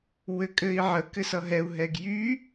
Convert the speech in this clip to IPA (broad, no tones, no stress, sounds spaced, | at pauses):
w ɘ kʼ ɘ i̯ ʕ ə k ɘ s ʌ ɦ ɛ u̯ ɦ ɛ ɡ j y